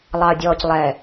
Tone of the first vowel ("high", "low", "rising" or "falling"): low